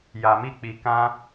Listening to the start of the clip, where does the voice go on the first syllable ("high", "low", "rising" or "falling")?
low